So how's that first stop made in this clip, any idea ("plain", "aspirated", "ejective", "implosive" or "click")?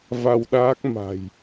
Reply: implosive